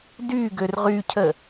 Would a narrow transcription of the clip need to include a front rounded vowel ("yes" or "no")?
yes